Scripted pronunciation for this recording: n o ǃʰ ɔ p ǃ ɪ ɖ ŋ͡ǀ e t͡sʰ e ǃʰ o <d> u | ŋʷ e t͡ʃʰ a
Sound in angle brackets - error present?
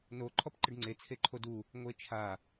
no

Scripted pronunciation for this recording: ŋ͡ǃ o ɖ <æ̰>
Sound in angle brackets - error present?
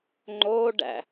no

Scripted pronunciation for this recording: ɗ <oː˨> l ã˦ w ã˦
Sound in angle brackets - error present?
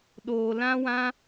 no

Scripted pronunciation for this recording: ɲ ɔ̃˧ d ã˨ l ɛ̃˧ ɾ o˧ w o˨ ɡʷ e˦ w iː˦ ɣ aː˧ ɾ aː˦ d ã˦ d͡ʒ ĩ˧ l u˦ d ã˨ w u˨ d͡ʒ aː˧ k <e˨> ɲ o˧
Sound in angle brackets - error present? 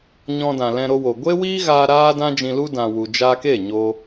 yes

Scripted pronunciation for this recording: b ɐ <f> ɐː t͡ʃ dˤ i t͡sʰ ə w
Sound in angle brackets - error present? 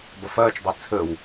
no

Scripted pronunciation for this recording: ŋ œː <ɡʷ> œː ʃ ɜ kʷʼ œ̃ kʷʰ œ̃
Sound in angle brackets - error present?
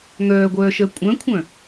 no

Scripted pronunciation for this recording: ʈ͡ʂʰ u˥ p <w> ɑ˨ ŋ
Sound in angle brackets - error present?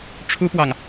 no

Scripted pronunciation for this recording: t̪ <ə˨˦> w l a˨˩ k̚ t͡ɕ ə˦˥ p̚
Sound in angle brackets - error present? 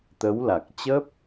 no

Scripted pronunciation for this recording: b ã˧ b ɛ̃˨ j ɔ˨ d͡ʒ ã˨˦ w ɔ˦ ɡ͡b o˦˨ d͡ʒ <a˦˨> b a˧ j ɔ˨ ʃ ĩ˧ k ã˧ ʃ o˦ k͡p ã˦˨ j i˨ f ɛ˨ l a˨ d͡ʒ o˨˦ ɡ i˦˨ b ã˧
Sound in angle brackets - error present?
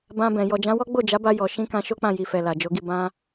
yes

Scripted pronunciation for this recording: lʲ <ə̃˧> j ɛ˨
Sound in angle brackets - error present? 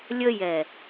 yes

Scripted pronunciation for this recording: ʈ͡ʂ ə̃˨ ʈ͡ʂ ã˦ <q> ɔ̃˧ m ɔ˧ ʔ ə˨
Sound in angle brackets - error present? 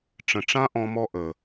yes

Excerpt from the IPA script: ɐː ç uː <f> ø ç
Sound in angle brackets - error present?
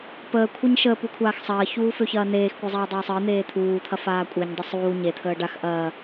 no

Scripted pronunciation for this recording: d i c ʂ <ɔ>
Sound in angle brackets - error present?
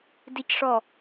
no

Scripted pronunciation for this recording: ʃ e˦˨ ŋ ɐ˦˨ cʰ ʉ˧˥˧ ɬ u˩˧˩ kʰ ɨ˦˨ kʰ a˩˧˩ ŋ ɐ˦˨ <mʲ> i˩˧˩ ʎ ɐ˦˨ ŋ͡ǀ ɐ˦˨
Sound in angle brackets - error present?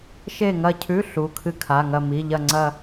yes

